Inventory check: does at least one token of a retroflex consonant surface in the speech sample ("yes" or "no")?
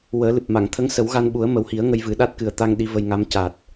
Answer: no